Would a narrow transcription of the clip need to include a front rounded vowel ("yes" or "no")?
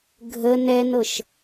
no